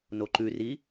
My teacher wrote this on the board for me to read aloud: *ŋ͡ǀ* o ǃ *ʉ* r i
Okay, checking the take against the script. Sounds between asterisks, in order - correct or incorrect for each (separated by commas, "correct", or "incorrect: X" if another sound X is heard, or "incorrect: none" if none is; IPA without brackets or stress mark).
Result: incorrect: n, correct